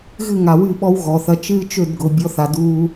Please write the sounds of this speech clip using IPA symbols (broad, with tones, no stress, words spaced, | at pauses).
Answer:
ɣɨ˦˨ŋa˨wɨ˦˨ɓɔ˦w ɣɔ˨θɐ˦ t͡ʃɨː˦t͡ʃø˦˨dɡʊ˨ bʲɔ˦θa˨duː˦